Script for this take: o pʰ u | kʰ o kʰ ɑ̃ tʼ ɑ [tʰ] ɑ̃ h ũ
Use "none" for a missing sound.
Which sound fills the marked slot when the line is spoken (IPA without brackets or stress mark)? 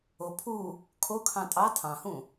tʰ